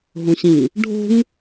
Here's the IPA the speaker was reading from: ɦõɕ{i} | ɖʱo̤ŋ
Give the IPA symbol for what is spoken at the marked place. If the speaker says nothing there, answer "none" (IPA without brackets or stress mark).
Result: ĩ